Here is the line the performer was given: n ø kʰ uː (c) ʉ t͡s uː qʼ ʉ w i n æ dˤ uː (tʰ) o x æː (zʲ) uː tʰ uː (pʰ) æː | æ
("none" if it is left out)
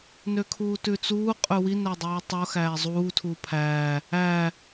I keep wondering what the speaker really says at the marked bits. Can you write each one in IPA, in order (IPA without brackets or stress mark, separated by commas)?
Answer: t, tˤ, zˤ, pʰ